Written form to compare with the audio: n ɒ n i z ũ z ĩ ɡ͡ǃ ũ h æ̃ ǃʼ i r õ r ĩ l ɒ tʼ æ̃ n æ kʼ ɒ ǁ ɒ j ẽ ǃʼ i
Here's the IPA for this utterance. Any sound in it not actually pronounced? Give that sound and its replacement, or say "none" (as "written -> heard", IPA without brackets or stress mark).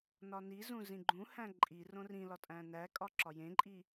none